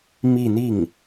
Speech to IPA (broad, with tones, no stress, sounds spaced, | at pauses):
m i˥˧ n̪ i˥˩ ŋ